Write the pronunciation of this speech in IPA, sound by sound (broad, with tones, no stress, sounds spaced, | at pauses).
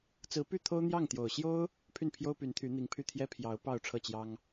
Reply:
t͡s ɹ̩˧˥ p y˥˩ t̪ʰ o˥ ʊ̯ n̪ j ɑ˥˩ ŋ t̪ j o˨˩ ʊ̯ ɕ j o˥ ʊ̯ | pʰ y˥˩ n pʰ j o˥ ʊ̯ p y˧˥ n t̪ʰ y˧˥ n̪ i˧˥ ŋ pʰ y˥˩ t̪ʰ j ɛ˥ pʰ j ɑ˧˥ ʊ̯ p ɑ˥˧ ʊ̯ ʈ͡ʂʰ ɤ˥˩ t͡ɕ j ɑ˥ ŋ